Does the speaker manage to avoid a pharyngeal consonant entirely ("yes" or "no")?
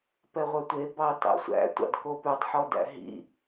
no